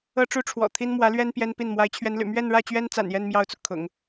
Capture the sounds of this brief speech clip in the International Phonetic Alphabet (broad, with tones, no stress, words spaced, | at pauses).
ɤ˥ʈ͡ʂu˥ʈ͡ʂʰwɔ̰˨˩ t̪ʰi˥n mwä˧˥lɥɛ˥n pjɛ˥npi˥˩n mwa˧˥ɪ̯t͡ɕʰɥɛ˧˥nly̰˨˩ mɥɛ˥˧nɻä˥˩t͡ɕɥɛ˥n t͡sa̰˨˩njɛ˥˧n mjɑ˥˩ʊ̯t͡su˩ kʰʊ̰˨˩˦ŋ